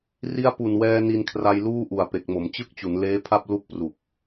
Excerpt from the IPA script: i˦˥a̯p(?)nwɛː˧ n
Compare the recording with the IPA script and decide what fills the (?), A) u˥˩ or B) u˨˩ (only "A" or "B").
B